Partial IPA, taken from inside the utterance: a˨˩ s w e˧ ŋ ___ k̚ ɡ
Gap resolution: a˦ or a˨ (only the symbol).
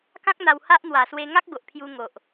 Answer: a˦